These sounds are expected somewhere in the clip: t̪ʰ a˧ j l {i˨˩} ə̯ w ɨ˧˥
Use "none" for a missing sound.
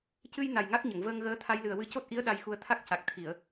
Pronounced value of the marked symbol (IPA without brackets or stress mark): ɨ˨˩